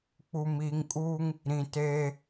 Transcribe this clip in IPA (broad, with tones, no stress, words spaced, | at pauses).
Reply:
k͡pu˨miː˨ŋkʼuː˦ŋ | ɾĩ˨teː˦